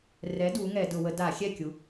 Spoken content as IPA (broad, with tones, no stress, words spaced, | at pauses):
rɛ˩˥ du˩˥ŋɛ˧˩˧dʊ˧˩˧ wə˩˧ da˧˩˧xʲɛ˥˩kʲu˩˥